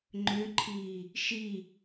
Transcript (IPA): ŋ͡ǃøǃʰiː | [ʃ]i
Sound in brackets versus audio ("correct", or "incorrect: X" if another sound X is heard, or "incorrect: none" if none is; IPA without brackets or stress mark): correct